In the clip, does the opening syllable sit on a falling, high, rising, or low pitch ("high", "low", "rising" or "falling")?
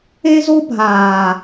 high